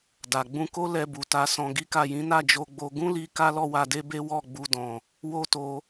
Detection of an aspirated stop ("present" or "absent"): absent